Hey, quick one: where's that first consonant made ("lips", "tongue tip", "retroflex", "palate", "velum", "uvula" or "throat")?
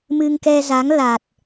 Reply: lips